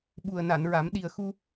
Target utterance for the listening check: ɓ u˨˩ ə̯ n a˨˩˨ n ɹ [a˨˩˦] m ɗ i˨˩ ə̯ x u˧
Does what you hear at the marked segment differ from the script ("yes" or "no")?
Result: no